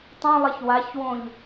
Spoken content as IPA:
tˤ ĩ lˠ i ç w a ç w õ ʎ

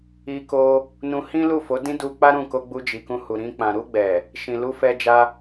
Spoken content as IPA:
i˧ k o˧ | n ũ˧ h ĩ˦ l u˦˨ f o˨˦ d ĩ˦ d u˧ k͡p a˦ ɾ ũ˦˨ k o˧ ɡ͡b u˧ d͡ʒ i˨ k ũ˧ h u˨ ɾ ĩ˧ k͡p ã˨ ɾ u˧ ɡ͡b ɛ˨ | ʃ ĩ˨ l u˧ f ɛ˧ d͡ʒ a˧

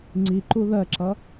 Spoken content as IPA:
ŋ͡ǀ i ǃ u ð ɜ ǁ ʌ

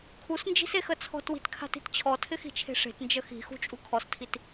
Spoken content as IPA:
kʰ u s n d͡ʒ i̤ s e x ə t͡sʰ ɔ̤ t w i̤ t kʰ a̤ t i̤ t t͡ɕʰ ɔ tʰ ɪ x i̤ t͡ʃʰ e̤ ʂ e̤ t n d͡ʒ ə x i̤ x ṳ t͡ʃʼ u kʰ ɔ s tʰ i t

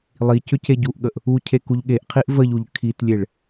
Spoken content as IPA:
lˠ i c ʏ c e ɟ u ʔ ɠ ə ʔ | u cʰ e k u ʎ ɠ e ʔ qʰ i ʔ v ə ʎ u ʎ kʰ i t lʲ e ɭ

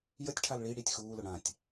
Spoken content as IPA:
j ə tʲ ʈʰ a l ɭ i ɽ i tʲ x uː l ʊ ɽ ã tʲ

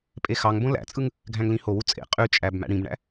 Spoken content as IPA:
pʼ e x ɑ ŋ b õ l æ̰ t͡sʼ ɯ ŋ | ɡʱ æ̃ ŋ l ĩ h o w u t͡sʼ ḛ qʼ y t͡ʃʼ æ b m æ̰ ɽ ĩ b ɳ æ̰

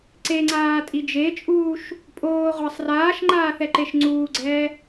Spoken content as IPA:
ǀ e ŋ͡ǀ aː tʼ i d͡ʒ e t͡ʃʼ uː ʃ | pʼ oː ʁʷ a sˤ r aː ʃ ŋ͡ǃ aː θ ɛ ǃ e ʃ ŋ͡ǀ uː ɡ͡ǀ ɛː

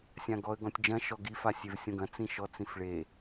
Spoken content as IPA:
sʲ ã ɡ ɔ ə̯ ɡ ɔ̃ tʲ d͡ʒ ɐ̃ ʃ ɔ ɡ i f a sʲ e v sʲ õ ɡ ɐ̃ t͡s ĩ ʃ ɔ t͡s ĩ f ɭ e

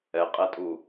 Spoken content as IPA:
ɛ qʼ ɛ tʼ u

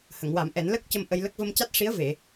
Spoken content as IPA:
h ə˨˩˨ ŋ w a˨˩˦ m ʔ ɛ˨˩˦ n l ə˦˥ k̚ c ə˧ m ʔ ə˧ j l ə˦˥ k̚ v ə˧ m c a˦˥ t̚ ʂ i˧˥ ə̯ v e˨˩˨

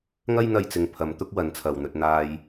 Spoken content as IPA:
ŋ ɐ˥ j n̪ ɐ˧ j t͡s ɪ˨ ŋ pʰ ɐ˨˧ m t̪ ʊ˥ k̚ w ɐ˨˧ n t͡sʰ ɐ˨ w n̪ ɵ˧ t̚ n̪ aː˧ j

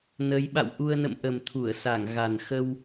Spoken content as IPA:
n ə˨˦ j ɓ a̰˧˨ w ʔ u˧ ə̯ n ə̰˧˨ m ʔ ə˨˩ m t̪ʰ u˧˩ ə̯ s a˧˩ ŋ ɣ a˨˩ n x ə˧ w

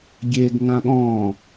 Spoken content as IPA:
ɡʲ e ɡ ŋ ã ɠ ɔ̃ː

